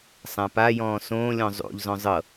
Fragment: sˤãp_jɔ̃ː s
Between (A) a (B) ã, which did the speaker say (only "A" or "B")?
A